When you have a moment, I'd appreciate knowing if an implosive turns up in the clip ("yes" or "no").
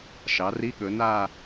yes